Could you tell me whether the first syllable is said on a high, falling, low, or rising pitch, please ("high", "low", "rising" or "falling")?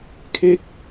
falling